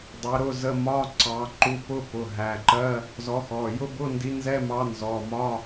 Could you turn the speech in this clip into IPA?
dˤ ɛ˨˥ ɾ ʊ˧˥˧ z ə˧˥˧ m ɒ˧˥˧ ǀ ɑ˨˥ ǃ u˨˥ p ʊ˧˥˧ p ʊ˩˧˩ ɦ æ˩˧˩ ǃ ɜ˧˥˧ | z ɔ˨˥ x ɔ˩˧˩ j ʊ˧˥˧ b ʊ˧˥˧ n d i˨˥ n z ɛ˧˥˧ m ɑ˨˥ n z ɔ˩˧˩ m ɒ˧˥˧

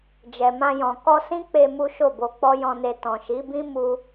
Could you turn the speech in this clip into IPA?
d͡ʒ ɛ˨ m ã˧ j ɔ̃˨ k ɔ˧ s ĩ˦ k͡p e˧ m u˦ ʃ o˦˨ b o˧ k͡p ɔ˦ j ɔ̃˧ n e˧ t ɔ̃˨ ʃ i˨˦ b ĩ˦ m u˦

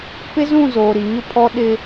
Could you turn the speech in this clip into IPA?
p ɪ˦ z ũ˦˨ z oː˨ ɾ i˨ ɲ ʊ˦ pʰ ɔ˦ ɗ ɪ˦

